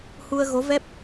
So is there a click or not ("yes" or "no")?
no